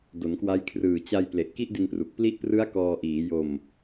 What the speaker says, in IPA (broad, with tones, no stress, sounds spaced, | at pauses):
d o˩˦ n k w a˦˥ j kʰ r ɯː˨˩ t͡ɕ a˧ j p l e˨˩ ʔ k i˦˥ ʔ d i˧ n p r u˨˩ k̚ p l i˦˥ ʔ p r ɯ˦˥ a̯ k ɔː˧ ʔ iː˩˦ j o˧ m